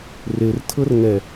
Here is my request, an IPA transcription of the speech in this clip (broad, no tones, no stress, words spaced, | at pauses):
rertʰɤr ŋɛ